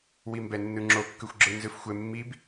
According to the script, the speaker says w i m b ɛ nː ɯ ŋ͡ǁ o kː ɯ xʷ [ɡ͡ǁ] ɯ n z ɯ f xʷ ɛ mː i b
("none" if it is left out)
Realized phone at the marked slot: ɡ͡ǁ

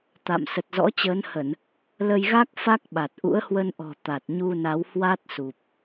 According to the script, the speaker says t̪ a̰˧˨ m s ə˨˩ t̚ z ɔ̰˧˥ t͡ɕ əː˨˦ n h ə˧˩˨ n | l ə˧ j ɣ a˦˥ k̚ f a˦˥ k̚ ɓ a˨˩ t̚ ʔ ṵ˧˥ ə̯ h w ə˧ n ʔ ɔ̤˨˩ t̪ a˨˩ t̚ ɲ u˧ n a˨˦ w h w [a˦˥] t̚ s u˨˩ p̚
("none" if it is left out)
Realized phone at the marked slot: a˦˥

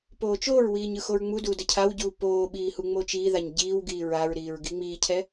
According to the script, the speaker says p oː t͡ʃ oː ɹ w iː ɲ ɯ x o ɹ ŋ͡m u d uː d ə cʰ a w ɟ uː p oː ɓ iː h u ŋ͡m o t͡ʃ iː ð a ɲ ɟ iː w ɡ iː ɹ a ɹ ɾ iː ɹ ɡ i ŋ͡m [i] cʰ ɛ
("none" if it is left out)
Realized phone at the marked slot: iː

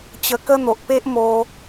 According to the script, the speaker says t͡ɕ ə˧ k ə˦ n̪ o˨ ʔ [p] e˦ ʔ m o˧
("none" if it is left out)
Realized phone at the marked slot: p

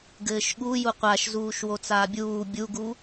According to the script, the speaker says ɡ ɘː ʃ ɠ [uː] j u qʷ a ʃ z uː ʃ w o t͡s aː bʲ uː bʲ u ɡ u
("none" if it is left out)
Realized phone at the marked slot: u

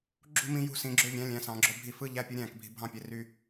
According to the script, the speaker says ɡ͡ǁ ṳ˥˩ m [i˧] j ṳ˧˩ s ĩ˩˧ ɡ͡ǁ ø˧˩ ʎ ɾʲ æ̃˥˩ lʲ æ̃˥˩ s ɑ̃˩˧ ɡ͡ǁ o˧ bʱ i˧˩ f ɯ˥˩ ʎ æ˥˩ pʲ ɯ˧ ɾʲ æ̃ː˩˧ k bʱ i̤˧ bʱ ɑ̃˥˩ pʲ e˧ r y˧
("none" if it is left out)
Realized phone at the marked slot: ĩ˧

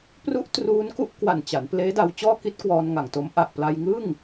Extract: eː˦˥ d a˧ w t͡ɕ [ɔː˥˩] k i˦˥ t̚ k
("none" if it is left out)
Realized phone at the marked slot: ɔː˥˩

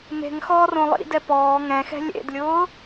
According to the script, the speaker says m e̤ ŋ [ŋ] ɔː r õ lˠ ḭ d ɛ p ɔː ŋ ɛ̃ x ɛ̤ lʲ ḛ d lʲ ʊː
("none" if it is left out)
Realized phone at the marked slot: x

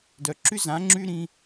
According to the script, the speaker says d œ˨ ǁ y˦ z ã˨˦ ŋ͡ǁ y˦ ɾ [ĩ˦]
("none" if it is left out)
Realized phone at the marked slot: ĩ˦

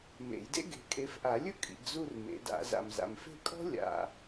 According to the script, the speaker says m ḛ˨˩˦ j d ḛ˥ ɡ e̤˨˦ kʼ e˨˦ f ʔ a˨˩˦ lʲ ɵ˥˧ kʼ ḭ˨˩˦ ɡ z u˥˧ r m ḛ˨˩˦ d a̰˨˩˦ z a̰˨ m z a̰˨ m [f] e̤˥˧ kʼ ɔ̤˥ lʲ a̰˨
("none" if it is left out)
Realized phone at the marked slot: f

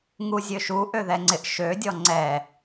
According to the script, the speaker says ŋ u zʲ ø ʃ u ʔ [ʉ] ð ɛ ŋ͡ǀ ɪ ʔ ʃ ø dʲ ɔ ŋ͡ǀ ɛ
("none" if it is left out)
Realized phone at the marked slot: ø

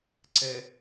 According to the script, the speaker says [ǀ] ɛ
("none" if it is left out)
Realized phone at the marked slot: ǀ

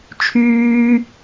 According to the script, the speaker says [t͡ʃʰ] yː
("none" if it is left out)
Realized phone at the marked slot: t͡ʃʰ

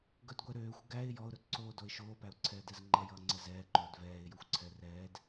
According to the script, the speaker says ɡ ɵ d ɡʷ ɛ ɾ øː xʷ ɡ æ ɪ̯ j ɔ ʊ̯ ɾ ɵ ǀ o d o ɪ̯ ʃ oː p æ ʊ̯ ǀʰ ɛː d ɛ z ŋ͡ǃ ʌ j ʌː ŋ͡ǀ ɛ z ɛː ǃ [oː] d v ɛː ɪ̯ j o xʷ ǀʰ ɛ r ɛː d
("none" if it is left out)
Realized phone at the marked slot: ɵː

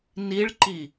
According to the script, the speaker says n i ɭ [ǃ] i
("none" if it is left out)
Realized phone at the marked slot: ǃ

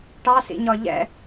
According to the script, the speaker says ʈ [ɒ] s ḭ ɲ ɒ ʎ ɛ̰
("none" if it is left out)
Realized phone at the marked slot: ɑ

